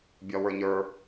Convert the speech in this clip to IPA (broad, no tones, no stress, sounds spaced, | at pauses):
bʲ ɒ w ə˞ ɲ ə˞